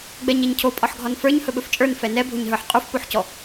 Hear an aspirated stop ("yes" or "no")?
yes